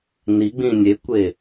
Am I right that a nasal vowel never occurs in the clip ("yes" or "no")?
no